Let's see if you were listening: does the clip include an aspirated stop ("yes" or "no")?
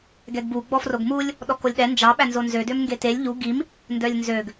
no